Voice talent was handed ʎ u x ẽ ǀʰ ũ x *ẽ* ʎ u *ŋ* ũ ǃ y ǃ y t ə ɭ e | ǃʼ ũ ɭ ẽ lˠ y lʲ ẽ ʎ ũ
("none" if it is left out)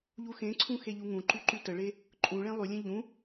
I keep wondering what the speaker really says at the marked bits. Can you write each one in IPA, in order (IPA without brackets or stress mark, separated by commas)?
e, ŋ